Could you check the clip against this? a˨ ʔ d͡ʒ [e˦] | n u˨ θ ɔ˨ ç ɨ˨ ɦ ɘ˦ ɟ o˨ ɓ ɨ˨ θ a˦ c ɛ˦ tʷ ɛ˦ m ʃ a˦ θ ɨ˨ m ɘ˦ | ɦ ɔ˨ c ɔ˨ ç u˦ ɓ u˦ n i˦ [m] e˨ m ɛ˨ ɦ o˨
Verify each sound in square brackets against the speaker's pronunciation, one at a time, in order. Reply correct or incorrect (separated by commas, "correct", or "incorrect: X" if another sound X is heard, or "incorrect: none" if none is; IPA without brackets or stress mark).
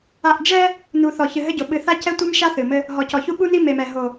incorrect: ɛ˦, correct